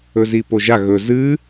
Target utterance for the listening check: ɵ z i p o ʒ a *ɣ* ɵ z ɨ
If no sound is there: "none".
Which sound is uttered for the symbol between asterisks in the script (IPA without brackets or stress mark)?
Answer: ɣ